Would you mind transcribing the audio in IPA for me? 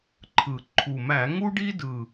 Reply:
ǃʰ ɯ˨˩ ǃʰ u˨˩ m æ˧˩˧ ŋ u˥ ɖ i˥ d ɯ˨˩

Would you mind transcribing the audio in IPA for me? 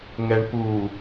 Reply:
ŋ ɛ ɳ p u

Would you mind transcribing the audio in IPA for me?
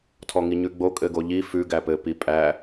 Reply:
tʰ ɔ ŋ i ɲ ʉ ɡ͡b o kʼ ɘ ɡ o ʎ i f ʉ ɡ æ p ɘ p i pʼ æ

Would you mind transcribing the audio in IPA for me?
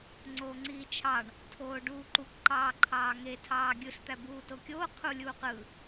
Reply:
ŋ͡ǀ oː ŋ͡ǀ iː t͡ʃʰ ɑ ɳ | tʰ oː ɖ uː ǃ u k ǃ ɑː ǃʰ ɑː ŋ e tʰ ɑː ɡʲ ɯ ɬ t̪ æ b uː t o kʲ oː qʰ u lʲ uː q ɯ

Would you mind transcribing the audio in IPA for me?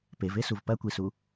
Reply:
p e v e s u v p ɐ kʷ i s u

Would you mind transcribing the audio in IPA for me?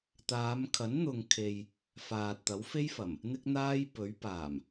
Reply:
t̪ aː˨˧ m kʰ ɐ˨˥ n n̪ ʊ˨ ŋ kʰ e˨ j | f aː˨ t̚ t̪ ɐ˨˥ w f e˥ j f ɐ˨˩ m | n̪ ɪ˥ k̚ n̪ aː˥ j p ɵ˨˥ ɥ p aː˨˩ m

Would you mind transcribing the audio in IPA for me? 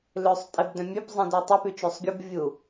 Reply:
l ø sˤ tʼ e b d œ̃ mʲ ø p zˤ ĩ d ø tˤ e p y t͡ʃ ø sˤ ɡʲ u b vʲ u

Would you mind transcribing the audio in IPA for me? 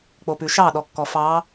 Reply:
k͡p o p ʉ ʃ ɑ ɗ ɔ kː ɔ f ɑ

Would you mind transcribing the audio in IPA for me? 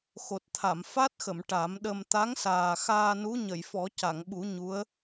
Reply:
x o˨˩ t̚ t̪ʰ a˨˩˨ m f a˦˥ t̚ x ə˨˩˨ m ʈ a˨˩˦ m ɗ ə˧ m t̪ a˧˥ ŋ s aː˨˩ x aː˧ n u˧˥ ɲ ə˨˩˨ j f ɔ˨˩˦ c a˨˩˨ ŋ ɓ u˨˩˦ ɲ u˧˥ ə̯

